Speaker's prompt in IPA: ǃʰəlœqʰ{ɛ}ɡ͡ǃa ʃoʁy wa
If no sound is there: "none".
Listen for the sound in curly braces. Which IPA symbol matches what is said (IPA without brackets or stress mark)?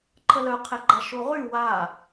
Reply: ɛ